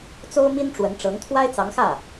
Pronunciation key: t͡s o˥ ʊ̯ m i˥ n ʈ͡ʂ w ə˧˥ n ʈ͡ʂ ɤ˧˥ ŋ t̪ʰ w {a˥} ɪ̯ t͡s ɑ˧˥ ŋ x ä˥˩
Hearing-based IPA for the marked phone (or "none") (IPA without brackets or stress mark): a˥